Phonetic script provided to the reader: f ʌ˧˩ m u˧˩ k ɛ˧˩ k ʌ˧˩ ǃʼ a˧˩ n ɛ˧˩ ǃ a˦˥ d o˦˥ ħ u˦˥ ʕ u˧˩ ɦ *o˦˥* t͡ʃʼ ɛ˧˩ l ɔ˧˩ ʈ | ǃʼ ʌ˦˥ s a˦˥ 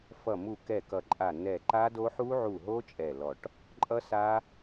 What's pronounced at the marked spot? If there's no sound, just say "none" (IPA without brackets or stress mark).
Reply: o˦˥